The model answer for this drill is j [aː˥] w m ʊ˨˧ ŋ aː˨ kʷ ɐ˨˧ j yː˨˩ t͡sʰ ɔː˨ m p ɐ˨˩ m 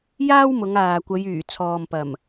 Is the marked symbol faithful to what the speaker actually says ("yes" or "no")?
yes